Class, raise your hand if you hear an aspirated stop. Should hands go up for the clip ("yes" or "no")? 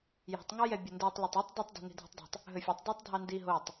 no